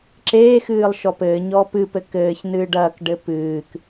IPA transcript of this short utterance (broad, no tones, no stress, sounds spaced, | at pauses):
ǁ eː x ɨː lˠ ʃ ɔ p ɘː ɲ ɔ p ɨ p ɘ k ɘː ç n ɨː ɖ ɐː k ɖ ɘ p ɨː k